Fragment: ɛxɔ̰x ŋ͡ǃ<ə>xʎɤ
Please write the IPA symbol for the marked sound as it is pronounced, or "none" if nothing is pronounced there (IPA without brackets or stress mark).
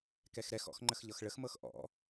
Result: ə